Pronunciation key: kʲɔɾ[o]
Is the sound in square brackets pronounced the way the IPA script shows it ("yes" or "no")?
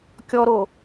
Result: yes